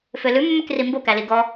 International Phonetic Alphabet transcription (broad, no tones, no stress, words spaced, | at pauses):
følʉmːøkri mbokæli ɡɔ